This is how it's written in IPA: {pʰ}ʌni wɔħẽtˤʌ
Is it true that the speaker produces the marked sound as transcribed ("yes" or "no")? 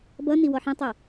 no